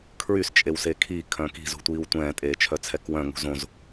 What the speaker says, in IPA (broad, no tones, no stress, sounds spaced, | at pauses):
kʰ ɹ y s t͡ʃʼ e w s e kʰ i kʰ œ̃ k i̤ z ṳ tʷ iː w tʷ ɛ̃ː tʼ eː t͡ʃʰ œ t͡sʰ ɛ k w œ̃ ŋ ṳ z õ z